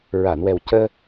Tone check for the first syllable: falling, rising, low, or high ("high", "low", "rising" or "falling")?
low